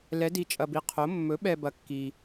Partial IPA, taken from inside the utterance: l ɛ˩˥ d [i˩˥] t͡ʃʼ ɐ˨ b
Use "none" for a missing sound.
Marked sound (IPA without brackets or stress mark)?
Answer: i˩˥